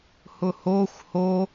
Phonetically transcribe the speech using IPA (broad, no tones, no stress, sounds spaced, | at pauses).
h ʊ h o xʷ h o